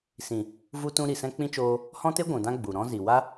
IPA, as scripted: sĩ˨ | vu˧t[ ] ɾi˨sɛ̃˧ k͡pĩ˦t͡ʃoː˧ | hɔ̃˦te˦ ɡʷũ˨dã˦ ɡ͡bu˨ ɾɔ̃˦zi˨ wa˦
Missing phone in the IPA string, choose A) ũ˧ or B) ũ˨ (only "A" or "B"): A